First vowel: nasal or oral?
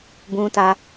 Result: nasal